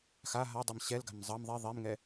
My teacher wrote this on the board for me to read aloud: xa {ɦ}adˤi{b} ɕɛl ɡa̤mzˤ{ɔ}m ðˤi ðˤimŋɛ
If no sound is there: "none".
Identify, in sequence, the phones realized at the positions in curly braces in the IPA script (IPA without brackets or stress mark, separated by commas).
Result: ɦ, m, ʌ